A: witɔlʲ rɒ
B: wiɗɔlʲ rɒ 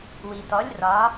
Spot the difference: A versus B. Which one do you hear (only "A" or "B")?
A